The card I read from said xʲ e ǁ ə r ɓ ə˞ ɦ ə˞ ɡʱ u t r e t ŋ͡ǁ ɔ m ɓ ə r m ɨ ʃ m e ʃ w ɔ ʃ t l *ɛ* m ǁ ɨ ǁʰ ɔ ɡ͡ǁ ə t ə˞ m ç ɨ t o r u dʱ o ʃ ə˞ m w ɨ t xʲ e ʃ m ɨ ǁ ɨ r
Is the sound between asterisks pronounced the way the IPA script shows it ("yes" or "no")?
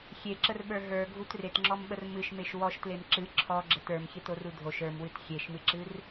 no